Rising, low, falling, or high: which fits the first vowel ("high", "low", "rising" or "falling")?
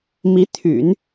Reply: rising